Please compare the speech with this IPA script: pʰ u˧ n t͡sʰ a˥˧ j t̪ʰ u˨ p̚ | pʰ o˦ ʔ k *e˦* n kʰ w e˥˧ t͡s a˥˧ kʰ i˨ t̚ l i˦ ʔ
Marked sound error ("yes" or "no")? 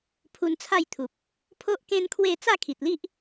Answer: yes